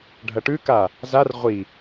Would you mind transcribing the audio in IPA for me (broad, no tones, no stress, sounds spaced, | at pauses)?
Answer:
ɖʱ ɐ ʈ ʉ k a | z a r ʁʷ i